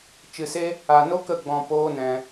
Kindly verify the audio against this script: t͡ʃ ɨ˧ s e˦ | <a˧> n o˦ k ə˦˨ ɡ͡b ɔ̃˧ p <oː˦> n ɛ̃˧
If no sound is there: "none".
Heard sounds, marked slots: a˧, oː˦

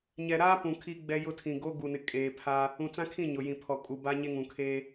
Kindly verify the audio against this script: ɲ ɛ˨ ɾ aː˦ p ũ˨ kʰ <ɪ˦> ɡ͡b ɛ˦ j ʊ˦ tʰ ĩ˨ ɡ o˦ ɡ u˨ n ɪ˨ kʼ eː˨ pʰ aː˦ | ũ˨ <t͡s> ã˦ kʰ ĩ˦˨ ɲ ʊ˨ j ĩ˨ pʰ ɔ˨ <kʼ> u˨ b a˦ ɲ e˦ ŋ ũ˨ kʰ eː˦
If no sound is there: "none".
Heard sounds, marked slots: i˦, t͡s, kʼ

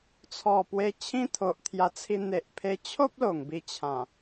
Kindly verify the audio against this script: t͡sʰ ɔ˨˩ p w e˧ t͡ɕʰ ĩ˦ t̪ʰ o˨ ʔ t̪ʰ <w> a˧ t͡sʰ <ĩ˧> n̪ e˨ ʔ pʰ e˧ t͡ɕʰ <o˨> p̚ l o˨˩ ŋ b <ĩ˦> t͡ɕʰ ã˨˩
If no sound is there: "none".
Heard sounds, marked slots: j, i˧, o˦, i˦

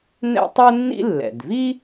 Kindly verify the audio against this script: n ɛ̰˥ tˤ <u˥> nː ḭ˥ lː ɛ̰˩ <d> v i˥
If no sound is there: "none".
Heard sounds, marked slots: u˥, d

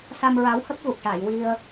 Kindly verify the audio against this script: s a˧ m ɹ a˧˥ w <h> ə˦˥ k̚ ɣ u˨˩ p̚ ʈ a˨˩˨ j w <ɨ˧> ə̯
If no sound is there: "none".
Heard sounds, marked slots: h, i˧

